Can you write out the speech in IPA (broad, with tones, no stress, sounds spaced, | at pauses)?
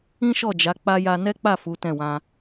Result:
ĩ˦ ʃ ɔ˦˨ d͡ʒ a˨˦ k͡p a˧ j a˧ n ɛ˦ k͡p a˦˨ f u˨˦ t ɛ̃˦˨ w ã˧